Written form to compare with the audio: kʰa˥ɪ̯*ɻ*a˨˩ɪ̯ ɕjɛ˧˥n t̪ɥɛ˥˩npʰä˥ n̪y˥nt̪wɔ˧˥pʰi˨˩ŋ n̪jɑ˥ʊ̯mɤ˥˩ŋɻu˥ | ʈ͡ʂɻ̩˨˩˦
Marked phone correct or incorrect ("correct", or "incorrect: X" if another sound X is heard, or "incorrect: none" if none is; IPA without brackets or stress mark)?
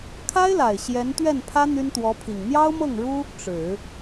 incorrect: l